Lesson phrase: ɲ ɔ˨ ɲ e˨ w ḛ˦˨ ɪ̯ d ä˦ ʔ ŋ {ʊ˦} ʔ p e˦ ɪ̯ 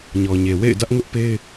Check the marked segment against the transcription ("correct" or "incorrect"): correct